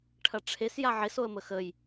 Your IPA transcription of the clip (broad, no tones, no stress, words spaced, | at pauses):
ʈʰɐʈ͡ʂʰes jaʕes oə̯məxəj